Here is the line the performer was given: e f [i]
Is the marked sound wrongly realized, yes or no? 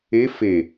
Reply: yes